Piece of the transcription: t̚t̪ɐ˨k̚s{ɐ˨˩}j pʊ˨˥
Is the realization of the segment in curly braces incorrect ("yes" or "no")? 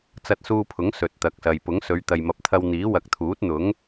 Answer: yes